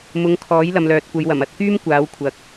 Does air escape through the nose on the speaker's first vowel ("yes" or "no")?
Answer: no